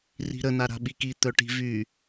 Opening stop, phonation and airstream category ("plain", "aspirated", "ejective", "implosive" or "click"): implosive